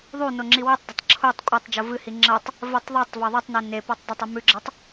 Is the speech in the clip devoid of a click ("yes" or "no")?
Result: no